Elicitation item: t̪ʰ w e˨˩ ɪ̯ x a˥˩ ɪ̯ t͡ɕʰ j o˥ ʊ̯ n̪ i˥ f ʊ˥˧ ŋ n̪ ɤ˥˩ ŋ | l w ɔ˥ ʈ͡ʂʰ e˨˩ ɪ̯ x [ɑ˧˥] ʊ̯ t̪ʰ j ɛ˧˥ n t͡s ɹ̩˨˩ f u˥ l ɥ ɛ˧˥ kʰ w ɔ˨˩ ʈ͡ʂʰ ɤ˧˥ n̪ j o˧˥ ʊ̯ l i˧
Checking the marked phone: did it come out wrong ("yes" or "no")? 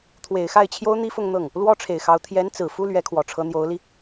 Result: no